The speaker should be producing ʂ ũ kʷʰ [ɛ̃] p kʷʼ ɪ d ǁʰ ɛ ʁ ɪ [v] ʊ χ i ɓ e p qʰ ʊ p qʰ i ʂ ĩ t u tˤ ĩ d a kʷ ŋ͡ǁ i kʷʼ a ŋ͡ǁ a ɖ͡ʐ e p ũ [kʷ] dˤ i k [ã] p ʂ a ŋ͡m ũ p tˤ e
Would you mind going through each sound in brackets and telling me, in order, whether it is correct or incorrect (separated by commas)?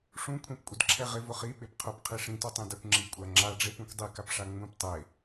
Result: correct, correct, correct, incorrect